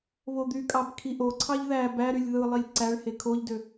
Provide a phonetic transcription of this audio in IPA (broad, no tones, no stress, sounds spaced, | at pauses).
β o d̪ y kʼ ɑ b kʰ i ʔ o ǀʰ ɑ ʎ ð æ b æ ɾ y lʲ ð ɯ lˠ i lʲ ǀ æ ɭ h e kʰ o ʎ d ø